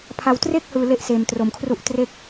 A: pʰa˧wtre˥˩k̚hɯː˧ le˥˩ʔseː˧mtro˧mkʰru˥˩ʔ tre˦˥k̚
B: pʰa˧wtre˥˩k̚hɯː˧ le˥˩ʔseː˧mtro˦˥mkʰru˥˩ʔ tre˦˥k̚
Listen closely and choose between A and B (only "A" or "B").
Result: A